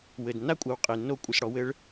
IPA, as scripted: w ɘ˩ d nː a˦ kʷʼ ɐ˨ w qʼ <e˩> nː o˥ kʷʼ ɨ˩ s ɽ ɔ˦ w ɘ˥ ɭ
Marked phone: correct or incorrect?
correct